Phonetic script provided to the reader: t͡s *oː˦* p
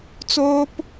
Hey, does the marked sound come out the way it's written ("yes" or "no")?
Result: yes